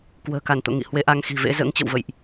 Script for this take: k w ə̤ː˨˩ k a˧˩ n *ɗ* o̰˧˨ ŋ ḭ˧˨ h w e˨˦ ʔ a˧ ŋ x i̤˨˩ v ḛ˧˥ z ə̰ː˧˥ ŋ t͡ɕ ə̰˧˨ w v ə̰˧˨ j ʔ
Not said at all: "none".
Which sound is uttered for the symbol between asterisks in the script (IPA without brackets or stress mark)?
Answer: t̪